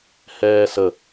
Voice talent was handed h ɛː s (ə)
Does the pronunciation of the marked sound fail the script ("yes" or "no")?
no